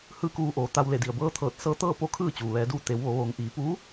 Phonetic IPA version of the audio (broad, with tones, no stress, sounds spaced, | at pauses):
h ɯː˥˨ k uː˧ ʔ oː˩˧ t̪ a˧ w l e˧˩ d i˩ ə̯ b ɤː˧˥ t̪ʰ ɤː˧˩ t̚ s ɤː˧˥ t̪ ɤː˥˨ p o˥˨ kʰ ɯː˥˨ t͡ɕ uː˩ ʋ ɛː˩˧ d uː˧ t̪ e˩˧ w ʋ o˩˧ ʋ oː˩˧ ŋ ʔ iː˩˧ p uː˧˥